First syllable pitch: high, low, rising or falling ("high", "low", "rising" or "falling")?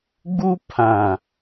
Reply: high